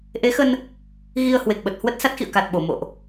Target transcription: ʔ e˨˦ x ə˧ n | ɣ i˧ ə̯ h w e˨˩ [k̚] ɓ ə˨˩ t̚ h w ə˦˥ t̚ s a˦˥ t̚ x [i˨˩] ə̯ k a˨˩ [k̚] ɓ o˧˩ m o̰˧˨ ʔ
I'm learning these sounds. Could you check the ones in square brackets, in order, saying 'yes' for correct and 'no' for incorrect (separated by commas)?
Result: yes, no, no